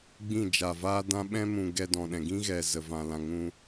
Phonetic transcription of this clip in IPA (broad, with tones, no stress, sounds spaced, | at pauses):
ɡ͡b ĩ˦˨ d͡ʒ a˨ v aː˦ d ã˦ ɓ ɛ̃˦ m ũ˨ ɡ ɛ˧ d ɔ̃˨ ɗ ɛ̃˨ ɡ ĩ˦ ɣ ɛ˨ z ə˨ v ã˨ l ã˨ ŋ ũ˧